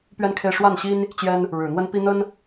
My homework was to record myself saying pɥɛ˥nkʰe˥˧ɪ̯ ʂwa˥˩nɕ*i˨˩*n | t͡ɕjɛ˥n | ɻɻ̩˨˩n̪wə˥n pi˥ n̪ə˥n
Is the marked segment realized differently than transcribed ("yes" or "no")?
yes